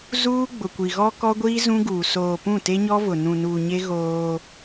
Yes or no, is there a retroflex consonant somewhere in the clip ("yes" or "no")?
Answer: no